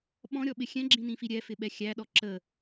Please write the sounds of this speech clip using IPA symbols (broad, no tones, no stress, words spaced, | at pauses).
ɓɔ̃ɾʲɔɓɪ xʲɛ̃ɡ͡ǁĩnĩfi ɾʲɛfɪɓɛ xʲæɗɔ ǁə